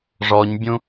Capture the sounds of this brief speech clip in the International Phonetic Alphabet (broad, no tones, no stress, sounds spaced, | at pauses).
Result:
ʐ ɔ ɲ bʲ ũ